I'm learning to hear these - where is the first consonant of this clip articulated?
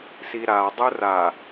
tongue tip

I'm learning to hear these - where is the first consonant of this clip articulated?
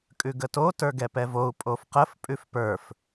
velum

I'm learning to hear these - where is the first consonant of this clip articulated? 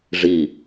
retroflex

